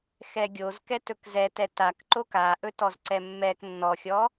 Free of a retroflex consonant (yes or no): yes